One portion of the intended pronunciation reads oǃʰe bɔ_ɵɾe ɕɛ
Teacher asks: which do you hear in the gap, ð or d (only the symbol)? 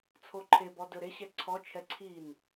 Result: d